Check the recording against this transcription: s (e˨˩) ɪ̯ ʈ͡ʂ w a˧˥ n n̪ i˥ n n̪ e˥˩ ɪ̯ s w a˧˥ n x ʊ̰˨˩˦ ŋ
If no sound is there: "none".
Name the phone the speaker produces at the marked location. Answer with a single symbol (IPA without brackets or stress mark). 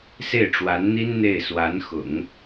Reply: e˥˩